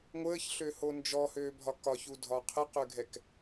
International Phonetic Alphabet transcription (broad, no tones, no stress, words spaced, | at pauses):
ŋʷəːçɬøho nd͡ʒɔhøːbʱɒ kɒçudʱɒ qʰəqøɡʱɛk